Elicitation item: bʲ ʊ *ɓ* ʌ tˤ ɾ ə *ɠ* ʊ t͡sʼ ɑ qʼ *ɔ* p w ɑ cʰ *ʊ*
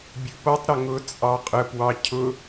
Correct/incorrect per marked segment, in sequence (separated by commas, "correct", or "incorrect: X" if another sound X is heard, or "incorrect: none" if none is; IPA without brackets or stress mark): incorrect: p, incorrect: ŋ, incorrect: ə, correct